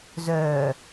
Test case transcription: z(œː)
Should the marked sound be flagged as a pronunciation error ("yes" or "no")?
no